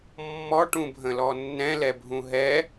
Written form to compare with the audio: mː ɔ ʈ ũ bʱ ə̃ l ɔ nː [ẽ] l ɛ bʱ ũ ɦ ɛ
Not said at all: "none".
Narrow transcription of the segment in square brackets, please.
ɛ̃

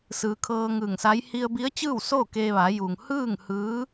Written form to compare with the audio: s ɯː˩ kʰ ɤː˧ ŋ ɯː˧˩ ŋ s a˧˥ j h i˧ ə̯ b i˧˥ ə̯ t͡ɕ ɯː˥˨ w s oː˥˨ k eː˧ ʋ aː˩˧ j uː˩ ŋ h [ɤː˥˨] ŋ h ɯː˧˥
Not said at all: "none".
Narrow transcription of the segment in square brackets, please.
ɯː˥˨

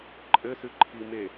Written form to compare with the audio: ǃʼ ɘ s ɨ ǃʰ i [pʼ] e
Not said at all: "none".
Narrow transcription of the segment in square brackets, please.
m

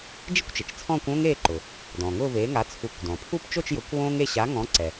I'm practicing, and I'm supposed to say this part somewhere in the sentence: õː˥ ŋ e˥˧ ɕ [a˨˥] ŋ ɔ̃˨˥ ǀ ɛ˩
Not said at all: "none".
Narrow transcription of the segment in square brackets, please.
a˨˥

